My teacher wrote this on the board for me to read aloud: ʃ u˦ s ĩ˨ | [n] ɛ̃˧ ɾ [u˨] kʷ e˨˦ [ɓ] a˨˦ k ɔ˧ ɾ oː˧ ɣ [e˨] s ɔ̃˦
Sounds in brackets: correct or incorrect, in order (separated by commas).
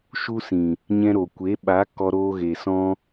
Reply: incorrect, incorrect, correct, correct